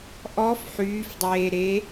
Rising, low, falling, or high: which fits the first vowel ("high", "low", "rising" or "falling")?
rising